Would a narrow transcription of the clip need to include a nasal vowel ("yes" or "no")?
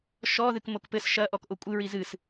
no